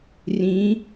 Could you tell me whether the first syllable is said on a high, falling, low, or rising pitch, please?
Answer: rising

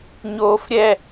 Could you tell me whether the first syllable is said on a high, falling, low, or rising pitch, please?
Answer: high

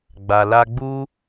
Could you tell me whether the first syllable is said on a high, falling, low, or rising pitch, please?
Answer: low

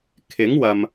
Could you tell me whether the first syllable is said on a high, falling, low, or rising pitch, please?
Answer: rising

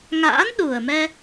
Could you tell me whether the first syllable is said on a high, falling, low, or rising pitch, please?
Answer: rising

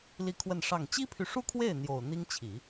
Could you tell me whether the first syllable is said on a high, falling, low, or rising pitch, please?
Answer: falling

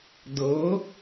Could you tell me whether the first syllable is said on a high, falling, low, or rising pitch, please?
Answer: rising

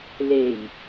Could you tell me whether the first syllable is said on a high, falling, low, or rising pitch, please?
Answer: low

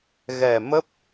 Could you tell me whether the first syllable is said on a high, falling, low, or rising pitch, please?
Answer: low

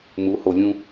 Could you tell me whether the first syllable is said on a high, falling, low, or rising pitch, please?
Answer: rising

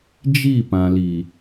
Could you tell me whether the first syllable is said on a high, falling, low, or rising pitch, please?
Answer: falling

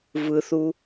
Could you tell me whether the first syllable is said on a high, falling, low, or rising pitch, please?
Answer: low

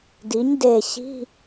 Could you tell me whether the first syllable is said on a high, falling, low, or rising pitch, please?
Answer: rising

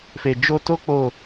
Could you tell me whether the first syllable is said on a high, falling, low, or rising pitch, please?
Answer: low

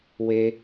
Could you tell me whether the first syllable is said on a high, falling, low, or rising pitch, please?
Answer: high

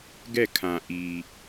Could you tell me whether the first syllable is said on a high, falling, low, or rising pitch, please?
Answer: falling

